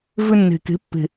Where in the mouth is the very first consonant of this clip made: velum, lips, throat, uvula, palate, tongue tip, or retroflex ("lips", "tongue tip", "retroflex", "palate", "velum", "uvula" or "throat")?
lips